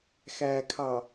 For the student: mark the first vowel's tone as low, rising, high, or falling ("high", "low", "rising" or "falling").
low